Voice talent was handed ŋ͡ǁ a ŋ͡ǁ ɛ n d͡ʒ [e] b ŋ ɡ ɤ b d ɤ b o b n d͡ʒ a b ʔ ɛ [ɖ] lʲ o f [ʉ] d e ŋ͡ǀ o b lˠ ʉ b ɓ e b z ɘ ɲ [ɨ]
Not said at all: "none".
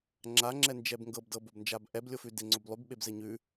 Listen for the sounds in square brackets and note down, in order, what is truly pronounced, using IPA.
ɛ, b, ʉ, ʉ

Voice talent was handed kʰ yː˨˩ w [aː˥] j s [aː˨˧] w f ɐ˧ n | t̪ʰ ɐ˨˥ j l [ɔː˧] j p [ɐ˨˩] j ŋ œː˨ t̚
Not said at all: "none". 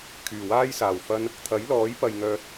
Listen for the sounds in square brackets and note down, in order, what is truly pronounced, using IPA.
aː˥, aː˨˩, ɔː˨˥, ɐ˨

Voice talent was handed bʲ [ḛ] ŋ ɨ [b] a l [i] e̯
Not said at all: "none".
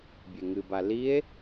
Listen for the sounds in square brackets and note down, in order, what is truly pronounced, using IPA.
e, b, i

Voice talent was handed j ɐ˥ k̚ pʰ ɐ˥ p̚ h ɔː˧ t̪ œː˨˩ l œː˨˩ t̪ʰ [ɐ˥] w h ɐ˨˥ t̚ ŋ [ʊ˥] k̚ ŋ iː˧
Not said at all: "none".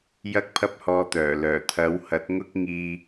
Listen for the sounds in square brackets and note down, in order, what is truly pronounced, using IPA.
ɐ˨˥, ʊ˥

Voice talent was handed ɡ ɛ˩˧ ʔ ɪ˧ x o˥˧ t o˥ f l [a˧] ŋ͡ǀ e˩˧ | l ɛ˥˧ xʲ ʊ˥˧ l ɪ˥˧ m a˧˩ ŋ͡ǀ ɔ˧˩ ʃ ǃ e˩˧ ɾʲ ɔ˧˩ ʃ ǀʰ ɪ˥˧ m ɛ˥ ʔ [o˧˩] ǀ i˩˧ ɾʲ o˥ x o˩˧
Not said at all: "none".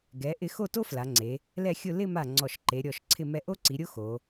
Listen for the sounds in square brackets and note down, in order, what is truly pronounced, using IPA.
a˩˧, o˥

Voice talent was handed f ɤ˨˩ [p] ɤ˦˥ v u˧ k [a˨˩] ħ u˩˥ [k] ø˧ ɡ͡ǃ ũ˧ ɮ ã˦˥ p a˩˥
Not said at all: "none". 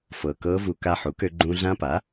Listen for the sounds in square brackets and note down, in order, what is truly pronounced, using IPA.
k, a˧, k

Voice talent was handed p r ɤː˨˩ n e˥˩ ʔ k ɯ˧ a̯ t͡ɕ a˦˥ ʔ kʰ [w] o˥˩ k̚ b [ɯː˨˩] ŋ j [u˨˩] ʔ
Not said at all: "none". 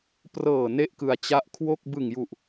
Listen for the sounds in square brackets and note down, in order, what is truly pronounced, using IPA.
w, ɯ˨˩, u˨˩

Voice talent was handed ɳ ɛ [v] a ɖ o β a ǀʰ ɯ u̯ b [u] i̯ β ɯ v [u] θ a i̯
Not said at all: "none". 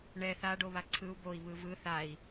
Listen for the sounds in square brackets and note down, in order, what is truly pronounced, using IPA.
θ, o, ɯ

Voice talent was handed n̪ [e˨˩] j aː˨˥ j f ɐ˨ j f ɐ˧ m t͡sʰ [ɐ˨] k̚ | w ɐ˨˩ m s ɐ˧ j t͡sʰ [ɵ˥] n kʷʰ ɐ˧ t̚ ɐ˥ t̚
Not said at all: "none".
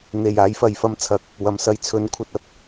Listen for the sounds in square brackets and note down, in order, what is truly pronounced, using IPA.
e˨˩, ɐ˨, ɵ˨˥

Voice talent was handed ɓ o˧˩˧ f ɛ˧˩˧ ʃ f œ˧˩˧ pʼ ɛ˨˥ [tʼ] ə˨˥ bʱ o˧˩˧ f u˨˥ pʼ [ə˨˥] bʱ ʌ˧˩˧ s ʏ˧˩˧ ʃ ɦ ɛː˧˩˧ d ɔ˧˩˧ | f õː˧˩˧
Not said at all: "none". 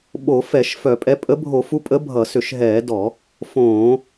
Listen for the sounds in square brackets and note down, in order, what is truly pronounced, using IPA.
pʼ, ə˨˥

